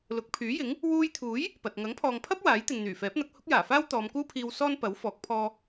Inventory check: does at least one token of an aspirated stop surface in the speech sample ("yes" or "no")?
yes